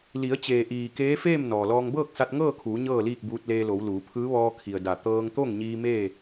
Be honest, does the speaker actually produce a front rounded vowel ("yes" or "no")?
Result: no